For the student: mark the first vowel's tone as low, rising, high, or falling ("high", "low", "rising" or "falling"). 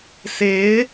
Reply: rising